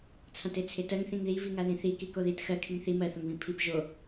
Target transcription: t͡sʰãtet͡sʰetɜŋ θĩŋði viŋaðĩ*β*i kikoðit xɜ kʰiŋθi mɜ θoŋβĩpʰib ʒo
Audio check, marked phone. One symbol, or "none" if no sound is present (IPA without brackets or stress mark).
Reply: θ